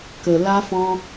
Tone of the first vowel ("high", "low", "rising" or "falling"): low